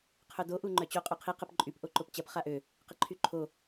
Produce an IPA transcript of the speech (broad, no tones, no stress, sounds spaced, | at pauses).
qʰ œ d o ʔ u ŋ͡ǃ œ t͡ɕ o qʼ o qʰ i q ə p ǃʼ y p ʔ o ǃ o p t͡ɕ ɐ p χ a ʔ ø | q ə ǃʰ y ǃʰ o